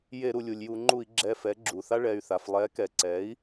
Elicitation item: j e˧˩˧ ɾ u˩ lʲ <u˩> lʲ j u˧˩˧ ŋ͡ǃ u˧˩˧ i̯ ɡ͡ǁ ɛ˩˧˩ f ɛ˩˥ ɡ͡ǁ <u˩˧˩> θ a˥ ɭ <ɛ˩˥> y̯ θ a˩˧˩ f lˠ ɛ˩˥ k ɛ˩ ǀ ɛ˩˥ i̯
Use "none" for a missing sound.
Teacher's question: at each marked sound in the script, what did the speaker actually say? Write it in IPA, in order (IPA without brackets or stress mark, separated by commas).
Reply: u˩, u˩, ɛ˩˧˩